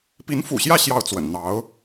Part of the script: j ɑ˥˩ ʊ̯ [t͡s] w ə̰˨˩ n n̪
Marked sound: correct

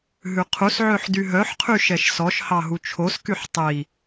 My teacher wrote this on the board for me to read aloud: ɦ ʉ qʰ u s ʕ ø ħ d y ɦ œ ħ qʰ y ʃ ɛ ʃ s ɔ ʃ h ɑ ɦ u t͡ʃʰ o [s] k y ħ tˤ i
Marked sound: correct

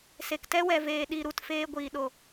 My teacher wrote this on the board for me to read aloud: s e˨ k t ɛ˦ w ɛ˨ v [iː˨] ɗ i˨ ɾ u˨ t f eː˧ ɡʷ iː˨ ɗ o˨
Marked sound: incorrect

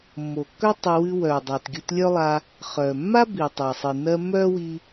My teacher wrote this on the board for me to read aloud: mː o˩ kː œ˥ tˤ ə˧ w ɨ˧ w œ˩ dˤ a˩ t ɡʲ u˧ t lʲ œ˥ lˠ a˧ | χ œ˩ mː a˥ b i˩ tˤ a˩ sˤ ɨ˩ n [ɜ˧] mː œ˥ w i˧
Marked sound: correct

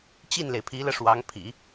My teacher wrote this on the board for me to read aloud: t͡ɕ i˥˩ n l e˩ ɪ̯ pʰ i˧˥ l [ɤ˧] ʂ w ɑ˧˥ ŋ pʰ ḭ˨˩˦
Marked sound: correct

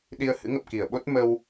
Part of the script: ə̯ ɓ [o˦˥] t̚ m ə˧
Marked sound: correct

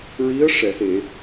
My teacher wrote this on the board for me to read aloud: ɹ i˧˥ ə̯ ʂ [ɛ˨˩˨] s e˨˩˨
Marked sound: correct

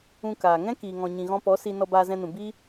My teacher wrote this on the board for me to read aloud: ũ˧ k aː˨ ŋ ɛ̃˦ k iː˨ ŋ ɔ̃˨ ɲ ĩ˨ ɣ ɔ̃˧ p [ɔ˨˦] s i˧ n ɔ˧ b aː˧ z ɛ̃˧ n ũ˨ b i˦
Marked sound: correct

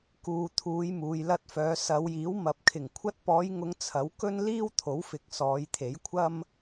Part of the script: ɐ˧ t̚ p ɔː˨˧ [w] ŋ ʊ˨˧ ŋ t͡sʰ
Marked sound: incorrect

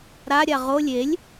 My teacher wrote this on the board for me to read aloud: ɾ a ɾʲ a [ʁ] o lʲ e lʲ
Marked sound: correct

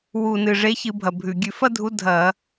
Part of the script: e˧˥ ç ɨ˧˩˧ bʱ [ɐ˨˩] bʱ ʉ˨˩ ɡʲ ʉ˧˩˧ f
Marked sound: correct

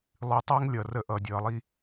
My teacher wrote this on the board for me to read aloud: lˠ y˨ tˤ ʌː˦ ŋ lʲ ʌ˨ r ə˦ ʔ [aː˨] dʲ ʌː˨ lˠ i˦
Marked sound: incorrect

